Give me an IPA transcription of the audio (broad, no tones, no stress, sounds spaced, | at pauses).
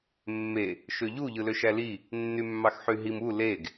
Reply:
mː e | ʃ ø ʎ u ʎ ɯ l ø ʃ æ l i | nː y mː ɑ x ħ y ɦ i m u l e ɡ